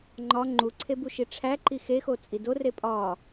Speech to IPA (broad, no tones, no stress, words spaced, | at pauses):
ŋ͡ǃɒ ŋ͡ǃuǀʰebuʃi ʈ͡ʂʰæǃi xexot͡sʼi dore pʼɒ